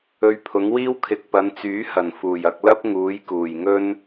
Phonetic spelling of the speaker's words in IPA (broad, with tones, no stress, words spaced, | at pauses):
ɵ˧ɥpʰʊ˨˥ŋwiː˥w kʰɪ˨k̚pɐ˨˧nt͡syː˨˥hɐ˨˩n fuː˨˩jɐ˧k̚ lɐ˥p̚ ŋuː˨˥j kuː˨˩jŋɵ˥n